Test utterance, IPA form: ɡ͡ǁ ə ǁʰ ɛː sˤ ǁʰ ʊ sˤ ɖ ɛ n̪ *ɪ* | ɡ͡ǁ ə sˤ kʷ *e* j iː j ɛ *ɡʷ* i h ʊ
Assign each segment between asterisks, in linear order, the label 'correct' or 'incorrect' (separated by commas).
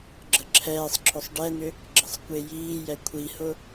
incorrect, correct, incorrect